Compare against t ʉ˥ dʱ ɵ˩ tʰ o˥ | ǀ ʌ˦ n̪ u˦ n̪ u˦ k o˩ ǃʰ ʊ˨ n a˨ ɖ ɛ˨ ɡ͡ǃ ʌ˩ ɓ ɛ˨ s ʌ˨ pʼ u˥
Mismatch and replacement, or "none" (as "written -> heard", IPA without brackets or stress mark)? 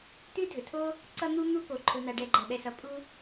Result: none